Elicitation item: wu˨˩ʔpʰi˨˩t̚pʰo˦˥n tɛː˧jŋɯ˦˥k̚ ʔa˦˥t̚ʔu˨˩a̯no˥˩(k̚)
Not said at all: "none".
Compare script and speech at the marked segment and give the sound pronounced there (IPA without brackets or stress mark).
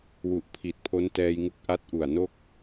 k̚